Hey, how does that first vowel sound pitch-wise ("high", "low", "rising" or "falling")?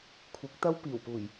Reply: rising